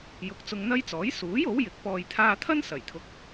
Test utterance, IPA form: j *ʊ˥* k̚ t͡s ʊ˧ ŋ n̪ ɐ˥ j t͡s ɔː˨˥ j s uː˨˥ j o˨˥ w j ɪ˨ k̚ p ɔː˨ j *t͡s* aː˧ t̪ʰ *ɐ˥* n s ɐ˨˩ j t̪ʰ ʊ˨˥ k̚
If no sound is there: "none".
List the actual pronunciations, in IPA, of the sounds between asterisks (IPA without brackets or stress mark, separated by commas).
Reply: ʊ˨˥, t̪ʰ, ɐ˥